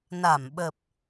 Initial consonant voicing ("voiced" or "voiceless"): voiced